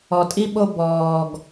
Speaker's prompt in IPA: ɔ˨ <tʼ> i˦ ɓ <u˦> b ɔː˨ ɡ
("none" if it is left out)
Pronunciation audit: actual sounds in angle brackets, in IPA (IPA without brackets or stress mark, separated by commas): tʼ, o˦